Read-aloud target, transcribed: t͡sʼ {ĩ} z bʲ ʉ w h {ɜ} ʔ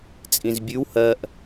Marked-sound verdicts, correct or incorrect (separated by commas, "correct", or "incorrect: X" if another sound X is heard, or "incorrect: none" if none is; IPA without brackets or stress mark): correct, correct